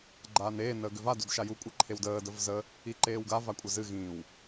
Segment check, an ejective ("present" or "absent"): present